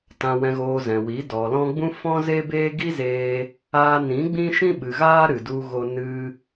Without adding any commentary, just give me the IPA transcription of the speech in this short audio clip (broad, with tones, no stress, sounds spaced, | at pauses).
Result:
t ã˨ w ɛ̃˨ ɣ oː˨ z ɛ̃˨ w i˨˦ d ɔ˨ l ɔ̃˧ ɡ͡b ũ˦ f ɔ̃˦ z e˦ b eː˦ ɡ i˦ z eː˧ | aː˧ n ĩ˨˦ ɡ͡b ĩ˦ ʃ ĩ˦ ɓ ɨ˨ ɣ aː˧ ɾ ɨ˨ d u˧ ɣ o˧ n ɨ˧